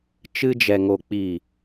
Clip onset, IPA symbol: t͡ʃ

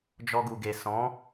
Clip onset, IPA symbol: d͡ʒ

